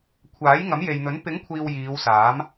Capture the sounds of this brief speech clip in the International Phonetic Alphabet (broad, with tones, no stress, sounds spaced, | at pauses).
kʷʰ aː˨˥ j ŋ ɐ˨˥ m j e˨ j n̪ ɵ˨˥ n p ɪ˨˥ ŋ kʷʰ iː˨ w j iː˨˧ w s aː˨˥ m